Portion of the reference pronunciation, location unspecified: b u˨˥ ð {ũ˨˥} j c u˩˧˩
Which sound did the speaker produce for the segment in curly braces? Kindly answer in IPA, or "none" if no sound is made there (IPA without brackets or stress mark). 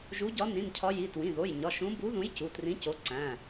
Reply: ũ˨˥